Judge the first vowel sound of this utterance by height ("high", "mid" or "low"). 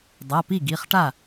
low